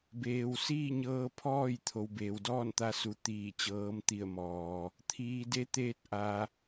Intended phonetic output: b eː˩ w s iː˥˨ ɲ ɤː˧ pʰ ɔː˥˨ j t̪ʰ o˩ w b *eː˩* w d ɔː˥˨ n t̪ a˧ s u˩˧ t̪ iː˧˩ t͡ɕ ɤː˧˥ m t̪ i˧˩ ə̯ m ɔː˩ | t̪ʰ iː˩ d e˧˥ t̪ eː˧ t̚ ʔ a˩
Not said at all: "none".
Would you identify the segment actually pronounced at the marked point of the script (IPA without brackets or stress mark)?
eː˩